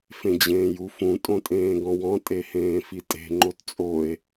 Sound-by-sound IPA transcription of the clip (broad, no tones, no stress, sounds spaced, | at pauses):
f ẽ d͡ʑ ẽː j u f ũ tʼ õ tʼ ẽː ɡ ɔ̃ w ɔ̃ tʼ e h ẽː f i tʼ e̤ ŋ͡ǃ o t t͡sʼ o e̯